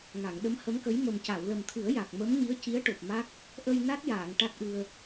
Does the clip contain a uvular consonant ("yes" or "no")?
no